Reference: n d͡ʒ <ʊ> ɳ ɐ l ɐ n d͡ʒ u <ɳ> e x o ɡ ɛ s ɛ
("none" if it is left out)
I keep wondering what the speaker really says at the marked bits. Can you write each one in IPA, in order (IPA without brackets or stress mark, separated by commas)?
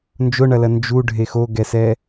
ʊ, ɖʱ